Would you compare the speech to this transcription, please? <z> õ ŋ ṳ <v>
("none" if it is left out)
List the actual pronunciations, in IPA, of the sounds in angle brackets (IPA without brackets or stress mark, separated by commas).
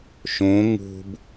ʃ, b